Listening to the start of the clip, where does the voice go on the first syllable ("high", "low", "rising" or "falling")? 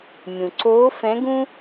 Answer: low